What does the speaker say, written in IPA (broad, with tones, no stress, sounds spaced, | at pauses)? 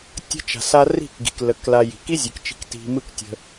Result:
tʲ ə̤˧ t͡ʃ a̤˨ s a˧ r i̤˦˨ k ɡ i̤˨ k l ə˧ k l a˧ j i̤˨ k i˦ zʲ ɯ˨ k t͡ʃ i̤˧ k t i̤˧ m ɯ˦ k tʲ ə̤˧